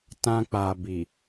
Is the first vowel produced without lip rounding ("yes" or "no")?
yes